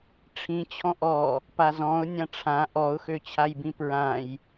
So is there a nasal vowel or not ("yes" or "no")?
yes